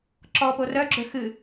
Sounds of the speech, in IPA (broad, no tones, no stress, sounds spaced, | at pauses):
ǁ ɔ p o r œ ɡ͡ǁ ø x ɨ